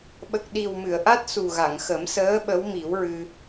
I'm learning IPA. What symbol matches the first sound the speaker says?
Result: ɓ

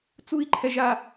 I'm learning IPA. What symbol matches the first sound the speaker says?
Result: t͡s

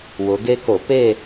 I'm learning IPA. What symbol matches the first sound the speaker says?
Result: w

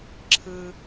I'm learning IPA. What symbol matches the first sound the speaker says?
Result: ǁʰ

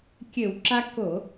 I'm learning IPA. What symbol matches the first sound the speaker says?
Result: kʲ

